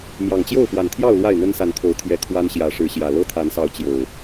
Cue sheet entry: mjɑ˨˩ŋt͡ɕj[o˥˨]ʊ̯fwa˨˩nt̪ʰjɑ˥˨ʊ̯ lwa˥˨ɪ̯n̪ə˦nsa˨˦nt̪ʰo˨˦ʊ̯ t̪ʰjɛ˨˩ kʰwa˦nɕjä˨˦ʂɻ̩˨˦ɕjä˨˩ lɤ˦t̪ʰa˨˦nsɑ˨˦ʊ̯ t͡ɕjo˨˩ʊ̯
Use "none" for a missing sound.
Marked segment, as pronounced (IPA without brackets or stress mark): o˥˨